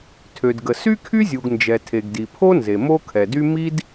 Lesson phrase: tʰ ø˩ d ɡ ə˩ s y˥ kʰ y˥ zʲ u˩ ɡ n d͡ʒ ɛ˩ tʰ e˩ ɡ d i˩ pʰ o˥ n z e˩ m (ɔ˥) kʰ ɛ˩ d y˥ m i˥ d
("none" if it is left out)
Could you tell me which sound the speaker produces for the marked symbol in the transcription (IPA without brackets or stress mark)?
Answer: o˥